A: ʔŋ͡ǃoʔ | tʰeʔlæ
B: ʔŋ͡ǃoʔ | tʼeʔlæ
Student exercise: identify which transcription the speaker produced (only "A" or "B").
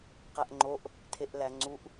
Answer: A